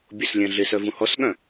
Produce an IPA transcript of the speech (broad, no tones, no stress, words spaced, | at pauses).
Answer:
bʲoslʲɛ̃ɮɪsœ vũhɔsɠœ̃